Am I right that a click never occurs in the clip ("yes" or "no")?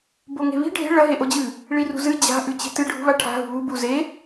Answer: yes